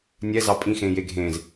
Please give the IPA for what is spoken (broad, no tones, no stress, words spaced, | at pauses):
nʲɛzɑ pʼĩxẽː jeɡʱẽːz